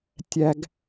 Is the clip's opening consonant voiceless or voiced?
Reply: voiceless